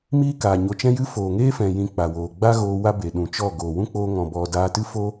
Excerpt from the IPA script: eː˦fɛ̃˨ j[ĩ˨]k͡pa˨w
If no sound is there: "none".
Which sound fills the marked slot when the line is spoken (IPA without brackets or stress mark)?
ĩ˧